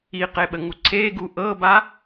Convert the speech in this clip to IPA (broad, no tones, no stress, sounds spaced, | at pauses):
i q e ɓ ə ŋ u ǀʰ e ɡ u ʔ ɤ b a